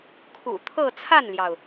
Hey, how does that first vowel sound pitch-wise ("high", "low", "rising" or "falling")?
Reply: low